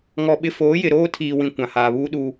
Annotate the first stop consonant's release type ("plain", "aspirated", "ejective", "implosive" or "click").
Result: implosive